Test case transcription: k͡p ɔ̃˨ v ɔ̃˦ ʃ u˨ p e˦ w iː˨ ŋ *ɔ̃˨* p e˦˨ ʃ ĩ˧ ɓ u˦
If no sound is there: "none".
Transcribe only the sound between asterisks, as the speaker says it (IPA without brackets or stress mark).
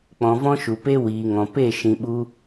ɔ̃˨